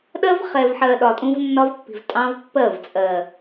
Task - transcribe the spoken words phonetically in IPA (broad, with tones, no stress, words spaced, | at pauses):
ɗɜ˦v χɛ˨vħɜ˨ ɗɒ˨tʼũ˦vnːɒ˦vpːi̤˨v tʼɑ̃˦vpːɜ˦˨v t͡sʼɜ˨